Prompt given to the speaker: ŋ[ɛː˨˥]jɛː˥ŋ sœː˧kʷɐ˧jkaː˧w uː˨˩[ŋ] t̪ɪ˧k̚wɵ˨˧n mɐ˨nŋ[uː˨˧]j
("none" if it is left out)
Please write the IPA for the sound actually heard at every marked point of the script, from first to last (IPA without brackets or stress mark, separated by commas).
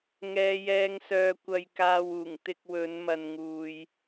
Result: ɛː˥, ŋ, uː˨